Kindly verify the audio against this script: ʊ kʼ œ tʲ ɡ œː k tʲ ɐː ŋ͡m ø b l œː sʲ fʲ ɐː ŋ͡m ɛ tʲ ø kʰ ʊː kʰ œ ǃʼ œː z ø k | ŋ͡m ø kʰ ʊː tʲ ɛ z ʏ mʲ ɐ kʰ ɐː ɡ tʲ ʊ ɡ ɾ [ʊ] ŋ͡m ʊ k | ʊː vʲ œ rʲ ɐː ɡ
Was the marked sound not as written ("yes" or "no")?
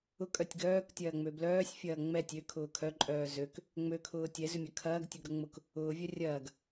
no